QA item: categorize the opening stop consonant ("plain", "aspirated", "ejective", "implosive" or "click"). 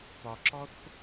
plain